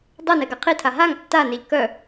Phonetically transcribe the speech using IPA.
dˤ e n ɛ ɡ a qʰ i tʰ a ɦ a ŋ tː a n e ʎ k œ

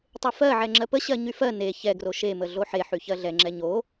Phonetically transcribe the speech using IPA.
tˤ e f ɜ ʕ ɛ ŋ͡ǁ ɜ p ə ɕ ɜ ɲ y f ɜ n e ç ɛ ɡ r o ʃ e m ə ɮ o ħ e ħ y ç ɜ ɮ ɛ ŋ͡ǁ ɛ ɲ o

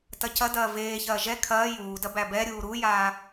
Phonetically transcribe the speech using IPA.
t ɐ c ɐ d ɐː v eː ç ɐː ʒ ɛ kʰ ɐː j uː d ɐ b æ b ɛ ɾʲ uː ɾ u j aː

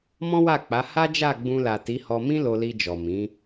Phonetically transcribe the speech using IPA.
m ɔ̃˦ w a˦˨ k͡p a˨˦ h a˦ d͡ʒ a˦˨ ɡ͡b ũ˧ l a˨ t i˨˦ h ɔ˧ m ĩ˦ l o˧ l i˧ d͡ʒ ɔ˨ m ĩ˨˦

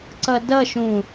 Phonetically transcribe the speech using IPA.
ǀ ʌ d ʌ ʃ ũ

